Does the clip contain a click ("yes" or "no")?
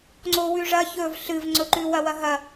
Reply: yes